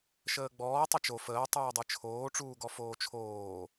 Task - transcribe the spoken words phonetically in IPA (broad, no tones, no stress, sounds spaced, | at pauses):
ʃ əː ɡ͡b ɔː tˤ ə t͡ʃ o f əː tˤ ɨː dˤ ɨ t͡ʃʰ oː ʈ͡ʂ uː ɡ ɔ f oː t͡ʃʰ oː